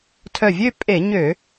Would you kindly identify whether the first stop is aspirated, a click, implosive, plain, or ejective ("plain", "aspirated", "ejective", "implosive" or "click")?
aspirated